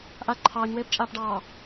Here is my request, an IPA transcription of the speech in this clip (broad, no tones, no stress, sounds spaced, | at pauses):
ʔ a ǃʰ ɑː ɲ w eː p t͡ʃʼ aː p ɖ ɑː